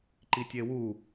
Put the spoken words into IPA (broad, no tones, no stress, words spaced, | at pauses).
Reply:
ǃitʲewu